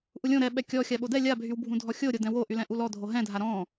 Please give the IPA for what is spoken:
ʔ u lʲ õ ɾ ɛ ɓ ɛ kʲ ɔ xʲ a ɓ o d ɛ lʲ a bʱ y w bʱ ũ dʱ ɔ xʲ o ɾʲ o d ɛ̃ w o ʔ y l ɛ̃ ʔ u l ɔ dʱ o ɦ ɛ̃ dʱ a ɾ ɔ̃

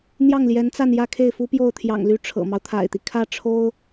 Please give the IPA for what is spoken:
n̪ j ɑ˥˩ ŋ l j ɛ˧˥ n t͡s a˥˧ n j ä˥˧ kʰ e˥˩ ɪ̯ f u˥ p j o˥˩ ʊ̯ t̪ʰ j ɑ̰˨˩ ŋ l y˧˥ ʈ͡ʂʰ ɤ̰˨˩ m ɑ˦ ʊ̯ t̪ʰ a̰˨˩ ɪ̯ t̪ i˦ kʰ ä˥˩ ʈ͡ʂʰ o˥ ʊ̯

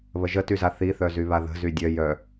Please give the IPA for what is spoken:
β ə ʒ ə t y z a θ i θ œ z y β a ð ə̤ z y dʲ œ j œ

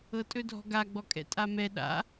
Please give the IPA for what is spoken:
ɤ tʼ ɵ dʱ ɔ̤ ɡ a ɡ͡b ɔ kʼ ɛ̰ tʼ a m ɛ ɗ a̰

